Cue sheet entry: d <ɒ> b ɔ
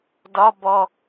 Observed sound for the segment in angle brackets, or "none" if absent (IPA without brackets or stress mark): ɒ